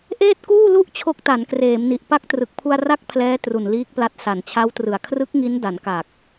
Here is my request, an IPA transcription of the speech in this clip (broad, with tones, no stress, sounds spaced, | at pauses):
ʔ eː˥˩ t̚ k uː˥˩ l u˥˩ ʔ t͡ɕʰ o˦˥ k̚ t a˩˦ n k r eː˩˦ m n i˨˩ ʔ p a˥˩ k̚ t r ɯ˨˩ k̚ pʰ u˧ a̯ r a˥˩ k̚ pʰ l ɛː˦˥ t r u˨˩ n l iː˦˥ k̚ p l a˦˥ t̚ s a˨˩ n t͡ɕʰ a˦˥ w t r ɯ˨˩ a̯ kʰ r ɯ˦˥ k̚ ŋ i˦˥ n d a˩˦ n k a˨˩ k̚